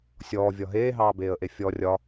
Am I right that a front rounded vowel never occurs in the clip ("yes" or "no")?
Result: yes